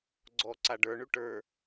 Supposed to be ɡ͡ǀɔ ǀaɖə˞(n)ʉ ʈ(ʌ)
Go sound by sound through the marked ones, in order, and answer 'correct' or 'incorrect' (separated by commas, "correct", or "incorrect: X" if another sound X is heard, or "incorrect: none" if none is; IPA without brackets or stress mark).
incorrect: ɳ, incorrect: ə˞